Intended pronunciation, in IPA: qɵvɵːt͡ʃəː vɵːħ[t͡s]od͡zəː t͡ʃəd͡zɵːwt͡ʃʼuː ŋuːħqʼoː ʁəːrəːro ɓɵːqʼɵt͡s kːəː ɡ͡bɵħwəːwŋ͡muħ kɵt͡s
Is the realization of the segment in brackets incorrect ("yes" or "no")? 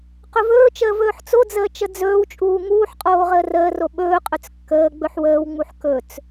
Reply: no